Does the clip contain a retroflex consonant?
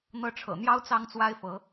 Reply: yes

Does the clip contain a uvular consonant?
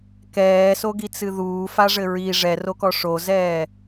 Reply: no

